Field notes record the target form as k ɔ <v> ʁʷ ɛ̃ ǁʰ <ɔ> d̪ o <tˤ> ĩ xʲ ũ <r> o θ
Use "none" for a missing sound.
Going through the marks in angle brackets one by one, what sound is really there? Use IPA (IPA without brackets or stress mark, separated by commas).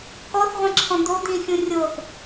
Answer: θ, ɔ̃, d̪, rʲ